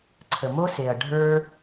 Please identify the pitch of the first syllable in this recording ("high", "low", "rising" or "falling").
low